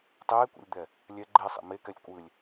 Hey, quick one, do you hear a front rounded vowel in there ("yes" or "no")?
no